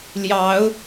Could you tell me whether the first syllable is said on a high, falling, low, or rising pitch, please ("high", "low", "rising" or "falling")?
rising